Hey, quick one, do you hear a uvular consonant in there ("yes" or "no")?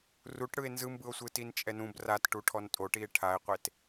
yes